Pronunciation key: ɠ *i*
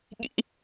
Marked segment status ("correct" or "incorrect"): incorrect